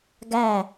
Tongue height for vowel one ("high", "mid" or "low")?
low